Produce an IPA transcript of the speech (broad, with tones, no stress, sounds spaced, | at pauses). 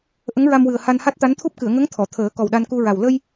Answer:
ʔ ə˧˥ ŋ ɹ a˧ m w ɨ˨˩ ə̯ h a˧ n h a˦˥ t̚ t̪ a˧˥ n t̪ʰ u˦˥ p̚ k ɨ˨˩˨ ə̯ ŋ ə˧˥ ŋ t̪ʰ ɔ˨˩˨ t̪ʰ əː˨˩˦ k ɔ˨˩ w ɗ a˧ n k u˧ ɹ a˨˩ w l ə˧ j